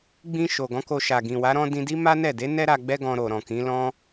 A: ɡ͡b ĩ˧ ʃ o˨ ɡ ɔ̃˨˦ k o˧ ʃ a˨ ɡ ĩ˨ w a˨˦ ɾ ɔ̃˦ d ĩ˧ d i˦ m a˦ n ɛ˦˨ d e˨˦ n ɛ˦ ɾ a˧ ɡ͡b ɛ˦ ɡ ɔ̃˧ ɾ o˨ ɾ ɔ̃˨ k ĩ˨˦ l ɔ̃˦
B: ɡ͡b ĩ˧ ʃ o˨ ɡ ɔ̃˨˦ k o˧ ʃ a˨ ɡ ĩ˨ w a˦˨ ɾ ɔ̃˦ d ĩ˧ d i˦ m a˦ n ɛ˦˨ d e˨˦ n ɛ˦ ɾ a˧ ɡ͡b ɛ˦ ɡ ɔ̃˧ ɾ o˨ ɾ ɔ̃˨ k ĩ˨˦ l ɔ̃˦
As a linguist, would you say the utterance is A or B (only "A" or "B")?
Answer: A